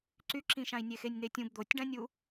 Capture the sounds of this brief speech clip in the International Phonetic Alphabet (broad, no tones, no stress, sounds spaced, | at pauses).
ǀ y ǁ ĩ ʃ ã i̯ nʲ e x e nʲ n̪ e tʲ ũ b d̪ o tʲ ɖ ã nʲ u